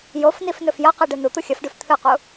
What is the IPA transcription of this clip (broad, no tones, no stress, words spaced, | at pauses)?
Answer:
jofnifnɵf jɐqiɖɨ nut̪u xʲɐfɖʉf t̪ʰɨqu